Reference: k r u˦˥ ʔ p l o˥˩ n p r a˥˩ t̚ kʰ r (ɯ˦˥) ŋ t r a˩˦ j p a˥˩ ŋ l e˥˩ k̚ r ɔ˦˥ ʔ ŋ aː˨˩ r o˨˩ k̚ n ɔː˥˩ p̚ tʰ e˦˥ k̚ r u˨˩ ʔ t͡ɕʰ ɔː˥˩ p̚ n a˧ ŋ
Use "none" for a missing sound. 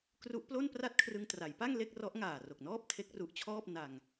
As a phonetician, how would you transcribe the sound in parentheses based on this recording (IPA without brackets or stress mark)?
ɯ˧